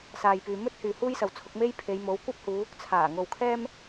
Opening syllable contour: low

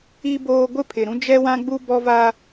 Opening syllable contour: high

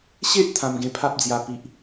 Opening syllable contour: high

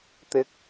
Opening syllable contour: high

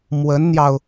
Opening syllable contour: rising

